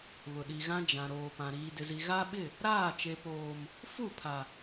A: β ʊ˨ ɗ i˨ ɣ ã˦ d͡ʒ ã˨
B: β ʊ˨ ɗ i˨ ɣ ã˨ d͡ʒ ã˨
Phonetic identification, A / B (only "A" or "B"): A